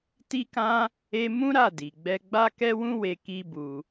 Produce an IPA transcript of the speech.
t i˦ k ã˦ | e˦ m ũ˦ ɾ a˦˨ d i˨ ɡ͡b ɛ˧ ɡ͡b a˦ k ɛ˦ w ũ˦ w e˧ k i˦ b u˧

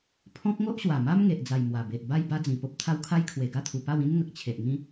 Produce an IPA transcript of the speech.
pʰ ɔ̃˦ k̚ ŋ o˦ ʔ ɕ w a˨˩ m a˦ m ŋ e˨ ʔ d͡z a˨˩ j m w a˨˩ b e˨ ʔ b a˥˧ j b a˦ d͡z ĩ˨˩ p o˦ p̚ t̪ʰ a˦ w kʰ a˦ j kʰ w e˨˩ ɡ a˥˧ t̪ʰ u˨˩ p a˥˧ w ĩ˦ n ŋ ə˨ k̚ t͡ɕʰ e˨ ʔ ŋ ĩ˦

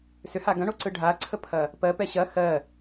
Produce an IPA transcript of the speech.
s ʏ h a ɡ ɐ̃ ɳ o ǀ ɯ ɖʱ a ǀʰ ə pʰ ɐ | p ɜ p ɛ ɕ ɐ x ɜ

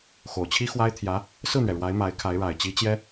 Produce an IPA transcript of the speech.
x o˨˩ ʊ̯ t͡ɕʰ i˥ x w a˥ ɪ̯ t̪ʰ j ä˧˥ | s ɹ̩˥˩ n̪ ɥ ɛ˩ ɻ w a˧˥ ɪ̯ m a˧˥ ɪ̯ kʰ a˧˥ ɪ̯ ɻ a˨˩ ɪ̯ t͡ɕ i˧˥ t͡ɕ j ɛ˥

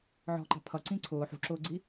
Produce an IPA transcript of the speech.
ʕ ɔ̤ ǃ ɑ̤ pʰ ʌ ǀ ĩ ǀʰ ʊː ħ ṳ ǁ ʊː ɡ͡ǀ i

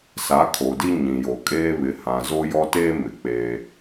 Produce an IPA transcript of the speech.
s a˨˦ kʰ o˨ d i˦ ɲ ĩ˨ j o˨ kʼ eː˦ β ɪ˨ h ã˨ z o˦ j ɔ˦ t eː˦ m ɪ˨ k͡p eː˦

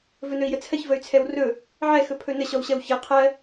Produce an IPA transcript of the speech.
v ɵ n ɵ i̯ j ə t͡sʰ ɜ ç v ə y̯ t͡sʰ ɛ w r ɵ | ʕ ɛ x ɵ pʰ ɵ n ə ɕ ɔ w ɕ ɜ w ç ɜ qʰ ɜ

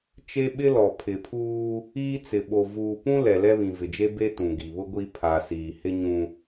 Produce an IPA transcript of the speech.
t͡ʃ e˦ ɓ ɪ˦ l ɔ˨ pʰ ɪ˨ pʰ uː˦ | iː˦ t͡s ɪ˨ ɓ o˨ v uː˨ p ũ˦ l ɛ˨ l ɛ˦ β ĩ˨ v ɪ˨ d͡ʒ e˦ b e˦ t ũ˨ ɡ i˨ β ʊ˦ ɡʷ i˦ pʰ a˨ s iː˨ h ɪ˦ ɲ ũ˦

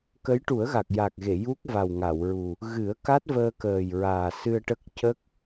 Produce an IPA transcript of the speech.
k ə˧˥ j ʈ u˨˩˦ ə̯ ɣ a˨˩ k̚ j a˨˩ k̚ ɣ e˨˩˨ j u˦˥ k̚ v a˨˩ w ŋ a˨˩˨ w ɹ u˨˩ | ɣ ɨ˨˩˦ ə̯ k a˦˥ t̚ v əː˧ k əː˨˩ j ɹ aː˨˩ s ɨ˧ ə̯ ʈ ə˦˥ k̚ c ə˦˥ k̚

